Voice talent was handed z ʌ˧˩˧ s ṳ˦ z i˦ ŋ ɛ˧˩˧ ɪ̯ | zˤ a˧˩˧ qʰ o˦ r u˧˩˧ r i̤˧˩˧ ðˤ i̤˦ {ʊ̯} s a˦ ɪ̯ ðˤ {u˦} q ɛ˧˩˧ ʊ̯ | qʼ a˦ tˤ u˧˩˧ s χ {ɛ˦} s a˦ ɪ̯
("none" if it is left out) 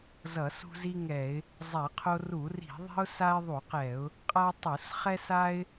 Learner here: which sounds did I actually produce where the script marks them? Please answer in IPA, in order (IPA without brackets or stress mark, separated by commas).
ʊ̯, u˧˩˧, ɛ˦